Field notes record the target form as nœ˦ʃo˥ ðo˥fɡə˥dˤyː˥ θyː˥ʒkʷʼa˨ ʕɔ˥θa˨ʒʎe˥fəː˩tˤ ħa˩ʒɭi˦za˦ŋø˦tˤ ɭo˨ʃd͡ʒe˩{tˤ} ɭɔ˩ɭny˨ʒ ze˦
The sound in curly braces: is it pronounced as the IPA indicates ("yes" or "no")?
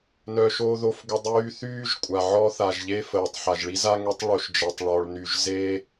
yes